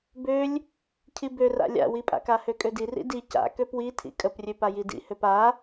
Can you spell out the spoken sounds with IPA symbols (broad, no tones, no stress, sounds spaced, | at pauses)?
b ø lʲ | cʰ i b ø r a̰ lʲ a̰ w i pʼ a̰ k a h ø kʼ ø d i r ḭ d i c a̰ k ø p w i tʰ ḭ kʼ ə p rʲ ø p a j i d ḭ h ø p a